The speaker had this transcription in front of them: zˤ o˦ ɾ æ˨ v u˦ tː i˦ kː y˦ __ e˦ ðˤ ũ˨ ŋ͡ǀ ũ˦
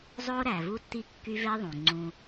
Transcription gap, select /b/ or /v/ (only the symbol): v